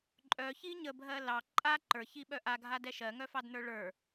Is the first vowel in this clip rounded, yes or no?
yes